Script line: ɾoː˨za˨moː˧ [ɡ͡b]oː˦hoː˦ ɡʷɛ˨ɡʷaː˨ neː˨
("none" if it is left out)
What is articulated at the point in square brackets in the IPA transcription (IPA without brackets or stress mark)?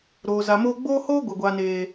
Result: ɡ͡b